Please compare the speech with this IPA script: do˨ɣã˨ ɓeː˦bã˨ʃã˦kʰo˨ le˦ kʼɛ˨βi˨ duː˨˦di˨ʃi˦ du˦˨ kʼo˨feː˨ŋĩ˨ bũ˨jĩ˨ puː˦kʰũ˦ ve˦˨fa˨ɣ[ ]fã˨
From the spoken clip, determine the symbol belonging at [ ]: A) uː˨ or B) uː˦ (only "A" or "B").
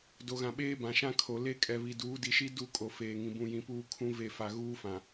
B